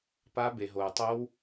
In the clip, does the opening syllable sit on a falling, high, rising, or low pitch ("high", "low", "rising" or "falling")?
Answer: high